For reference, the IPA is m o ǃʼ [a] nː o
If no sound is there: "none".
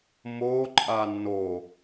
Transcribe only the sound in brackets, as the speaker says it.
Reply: a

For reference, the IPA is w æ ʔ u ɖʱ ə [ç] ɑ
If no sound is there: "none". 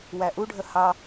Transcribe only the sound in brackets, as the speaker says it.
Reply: h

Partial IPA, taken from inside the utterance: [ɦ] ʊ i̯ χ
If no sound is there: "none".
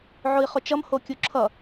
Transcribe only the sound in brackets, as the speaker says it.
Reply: ʕ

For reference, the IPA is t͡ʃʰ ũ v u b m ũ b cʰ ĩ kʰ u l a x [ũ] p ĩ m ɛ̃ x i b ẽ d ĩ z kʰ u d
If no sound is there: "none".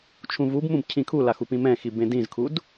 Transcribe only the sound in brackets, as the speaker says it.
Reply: u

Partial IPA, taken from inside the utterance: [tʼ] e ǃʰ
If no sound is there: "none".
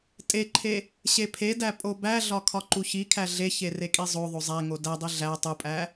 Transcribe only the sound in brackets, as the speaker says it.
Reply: tʼ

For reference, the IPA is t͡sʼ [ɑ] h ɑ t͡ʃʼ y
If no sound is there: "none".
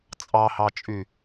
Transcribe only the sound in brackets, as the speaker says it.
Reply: ɑ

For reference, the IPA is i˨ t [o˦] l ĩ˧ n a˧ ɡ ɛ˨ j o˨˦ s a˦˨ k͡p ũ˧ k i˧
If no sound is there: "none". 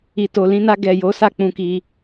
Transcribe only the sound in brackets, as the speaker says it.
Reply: o˨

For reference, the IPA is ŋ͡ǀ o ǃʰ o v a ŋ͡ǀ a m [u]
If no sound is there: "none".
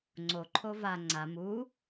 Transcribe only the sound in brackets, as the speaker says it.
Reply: u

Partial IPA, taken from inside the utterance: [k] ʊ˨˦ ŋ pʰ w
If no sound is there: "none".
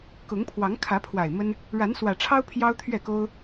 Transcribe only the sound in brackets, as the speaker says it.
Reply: k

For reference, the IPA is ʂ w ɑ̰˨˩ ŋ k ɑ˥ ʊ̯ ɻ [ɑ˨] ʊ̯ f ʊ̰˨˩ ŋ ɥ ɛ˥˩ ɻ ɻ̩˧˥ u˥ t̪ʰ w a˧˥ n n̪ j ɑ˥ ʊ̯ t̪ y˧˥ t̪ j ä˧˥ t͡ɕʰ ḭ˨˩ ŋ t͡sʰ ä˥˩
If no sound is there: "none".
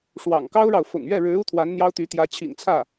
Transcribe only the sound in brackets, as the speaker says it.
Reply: ɑ˨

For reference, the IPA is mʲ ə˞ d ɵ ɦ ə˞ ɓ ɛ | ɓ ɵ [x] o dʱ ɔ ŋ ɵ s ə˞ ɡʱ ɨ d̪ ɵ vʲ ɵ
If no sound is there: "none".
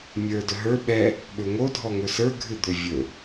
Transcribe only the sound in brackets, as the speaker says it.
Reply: ŋ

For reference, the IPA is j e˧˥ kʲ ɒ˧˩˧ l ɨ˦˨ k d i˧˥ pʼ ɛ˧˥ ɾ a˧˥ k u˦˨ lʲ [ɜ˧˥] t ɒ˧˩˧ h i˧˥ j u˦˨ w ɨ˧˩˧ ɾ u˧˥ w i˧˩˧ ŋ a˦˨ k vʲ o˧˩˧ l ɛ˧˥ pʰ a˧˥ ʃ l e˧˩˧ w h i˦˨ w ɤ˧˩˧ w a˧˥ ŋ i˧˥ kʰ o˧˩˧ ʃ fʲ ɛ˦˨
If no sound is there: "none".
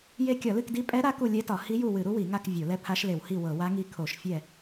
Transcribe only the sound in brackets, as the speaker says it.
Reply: ɛ˧˥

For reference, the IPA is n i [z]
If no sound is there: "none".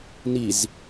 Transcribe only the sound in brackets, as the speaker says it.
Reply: z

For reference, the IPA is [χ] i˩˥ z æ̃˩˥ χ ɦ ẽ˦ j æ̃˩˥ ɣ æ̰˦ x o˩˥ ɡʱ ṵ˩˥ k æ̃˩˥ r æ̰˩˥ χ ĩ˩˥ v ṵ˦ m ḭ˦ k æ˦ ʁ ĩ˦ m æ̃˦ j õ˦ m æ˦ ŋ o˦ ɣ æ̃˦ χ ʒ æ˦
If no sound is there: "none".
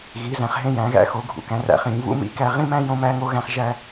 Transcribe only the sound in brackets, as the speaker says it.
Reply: ɣ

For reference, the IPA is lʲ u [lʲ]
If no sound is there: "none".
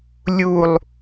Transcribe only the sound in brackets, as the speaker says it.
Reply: lˠ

